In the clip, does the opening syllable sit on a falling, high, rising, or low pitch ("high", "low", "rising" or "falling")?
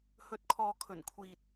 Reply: rising